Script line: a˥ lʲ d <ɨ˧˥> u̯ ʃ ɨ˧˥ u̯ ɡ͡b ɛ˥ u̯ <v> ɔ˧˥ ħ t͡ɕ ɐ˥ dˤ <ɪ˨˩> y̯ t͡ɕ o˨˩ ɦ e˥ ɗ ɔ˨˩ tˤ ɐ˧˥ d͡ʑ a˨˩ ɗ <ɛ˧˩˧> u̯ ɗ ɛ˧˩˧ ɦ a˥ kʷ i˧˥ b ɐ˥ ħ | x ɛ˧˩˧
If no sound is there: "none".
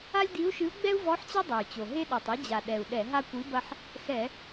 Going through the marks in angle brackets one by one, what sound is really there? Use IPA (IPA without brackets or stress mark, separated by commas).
i˧˥, v, ɛ˨˩, ɛ˨˩